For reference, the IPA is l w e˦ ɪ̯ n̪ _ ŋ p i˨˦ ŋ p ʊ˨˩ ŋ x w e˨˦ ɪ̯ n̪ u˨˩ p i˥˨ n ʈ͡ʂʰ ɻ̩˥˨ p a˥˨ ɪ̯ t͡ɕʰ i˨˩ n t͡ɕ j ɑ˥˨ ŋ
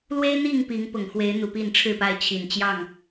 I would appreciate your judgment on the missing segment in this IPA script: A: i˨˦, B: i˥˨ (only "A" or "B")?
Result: B